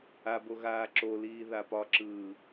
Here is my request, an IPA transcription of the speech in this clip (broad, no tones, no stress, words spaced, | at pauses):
abo ɣaːǁoliː ðapɒǁɯː